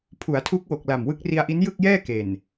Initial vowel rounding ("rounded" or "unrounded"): rounded